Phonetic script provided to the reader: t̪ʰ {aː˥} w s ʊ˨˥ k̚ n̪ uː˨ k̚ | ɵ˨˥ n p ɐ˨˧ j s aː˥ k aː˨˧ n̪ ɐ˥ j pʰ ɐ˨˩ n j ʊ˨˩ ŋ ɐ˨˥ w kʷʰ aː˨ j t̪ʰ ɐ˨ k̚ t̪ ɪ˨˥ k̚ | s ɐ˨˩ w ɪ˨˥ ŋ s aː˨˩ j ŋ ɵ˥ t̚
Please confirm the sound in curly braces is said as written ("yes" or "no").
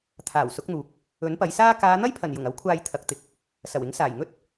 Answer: no